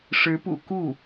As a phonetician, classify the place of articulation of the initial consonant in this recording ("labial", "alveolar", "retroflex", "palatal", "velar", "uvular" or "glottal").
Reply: retroflex